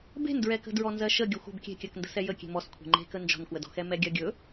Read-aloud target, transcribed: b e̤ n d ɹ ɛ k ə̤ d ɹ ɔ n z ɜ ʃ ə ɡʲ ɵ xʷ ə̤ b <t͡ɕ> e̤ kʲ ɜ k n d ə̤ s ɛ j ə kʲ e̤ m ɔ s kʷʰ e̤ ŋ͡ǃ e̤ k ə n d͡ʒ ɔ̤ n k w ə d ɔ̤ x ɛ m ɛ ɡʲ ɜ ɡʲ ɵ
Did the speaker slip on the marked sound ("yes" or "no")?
yes